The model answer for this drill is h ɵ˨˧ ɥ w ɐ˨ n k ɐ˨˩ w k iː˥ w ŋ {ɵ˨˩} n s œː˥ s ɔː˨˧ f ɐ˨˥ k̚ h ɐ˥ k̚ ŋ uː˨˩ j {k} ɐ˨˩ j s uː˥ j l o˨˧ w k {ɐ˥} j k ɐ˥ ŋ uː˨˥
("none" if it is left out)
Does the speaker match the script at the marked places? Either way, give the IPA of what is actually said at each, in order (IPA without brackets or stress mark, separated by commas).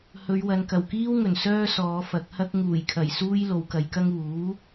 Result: ɵ˨˩, kʰ, ɐ˨˧